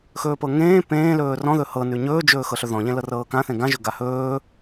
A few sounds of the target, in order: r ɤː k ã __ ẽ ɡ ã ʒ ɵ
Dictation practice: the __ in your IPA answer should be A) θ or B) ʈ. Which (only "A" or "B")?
A